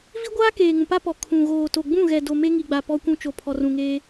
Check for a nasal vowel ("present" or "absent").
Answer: present